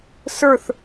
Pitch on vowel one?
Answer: falling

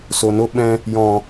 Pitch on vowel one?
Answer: low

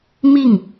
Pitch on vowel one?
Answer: falling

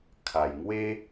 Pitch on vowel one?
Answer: low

